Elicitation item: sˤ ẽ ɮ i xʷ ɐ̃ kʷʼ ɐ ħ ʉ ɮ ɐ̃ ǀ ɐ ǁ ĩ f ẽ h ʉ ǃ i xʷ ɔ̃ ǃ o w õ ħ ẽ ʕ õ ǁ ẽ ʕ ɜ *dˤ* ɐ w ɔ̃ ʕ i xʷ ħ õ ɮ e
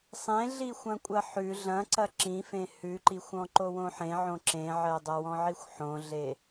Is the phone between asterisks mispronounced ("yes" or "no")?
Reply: no